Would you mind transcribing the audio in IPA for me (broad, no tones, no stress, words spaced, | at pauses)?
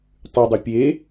tˤʉdˤɵ pʲe